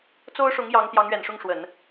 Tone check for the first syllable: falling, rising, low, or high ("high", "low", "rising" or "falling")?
high